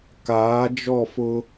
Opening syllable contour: rising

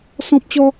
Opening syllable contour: high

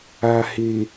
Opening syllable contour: low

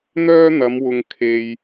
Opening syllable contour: high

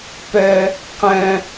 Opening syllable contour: high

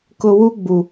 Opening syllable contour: low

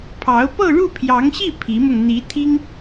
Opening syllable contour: rising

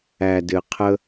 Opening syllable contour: low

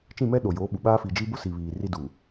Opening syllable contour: falling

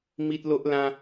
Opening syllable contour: high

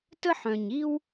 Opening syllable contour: high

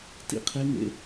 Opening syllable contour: high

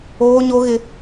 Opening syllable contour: high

